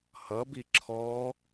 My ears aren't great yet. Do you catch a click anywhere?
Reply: yes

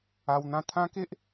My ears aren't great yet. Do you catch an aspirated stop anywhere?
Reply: yes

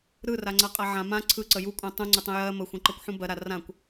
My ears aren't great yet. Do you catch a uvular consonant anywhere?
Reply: yes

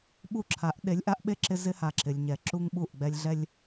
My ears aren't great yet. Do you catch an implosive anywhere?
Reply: yes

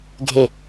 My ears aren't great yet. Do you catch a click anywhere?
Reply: no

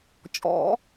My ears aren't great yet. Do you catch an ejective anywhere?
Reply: yes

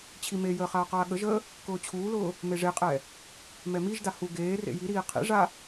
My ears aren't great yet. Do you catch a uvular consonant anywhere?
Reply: yes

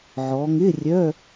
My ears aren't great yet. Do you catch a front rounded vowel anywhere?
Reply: yes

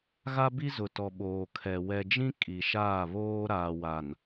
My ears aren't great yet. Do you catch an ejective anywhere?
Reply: yes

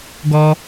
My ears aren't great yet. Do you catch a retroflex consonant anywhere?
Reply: no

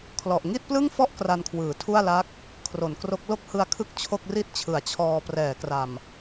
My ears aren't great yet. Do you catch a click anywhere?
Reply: no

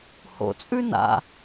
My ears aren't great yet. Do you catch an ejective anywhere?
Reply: yes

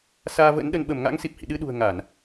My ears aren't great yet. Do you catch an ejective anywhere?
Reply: no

